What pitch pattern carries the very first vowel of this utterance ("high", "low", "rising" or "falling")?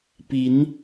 rising